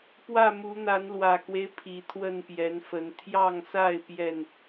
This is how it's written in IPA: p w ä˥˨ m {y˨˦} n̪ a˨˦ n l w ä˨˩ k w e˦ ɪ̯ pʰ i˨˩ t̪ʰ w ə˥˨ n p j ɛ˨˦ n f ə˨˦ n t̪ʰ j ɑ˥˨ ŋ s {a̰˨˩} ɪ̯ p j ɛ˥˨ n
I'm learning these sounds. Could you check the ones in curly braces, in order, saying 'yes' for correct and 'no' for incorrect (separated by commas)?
no, no